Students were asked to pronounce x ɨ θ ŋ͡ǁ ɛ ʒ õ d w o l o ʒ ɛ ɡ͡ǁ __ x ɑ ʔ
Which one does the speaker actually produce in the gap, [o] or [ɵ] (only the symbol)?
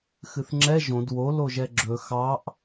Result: ɵ